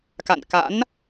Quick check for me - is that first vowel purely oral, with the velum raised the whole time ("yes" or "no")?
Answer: yes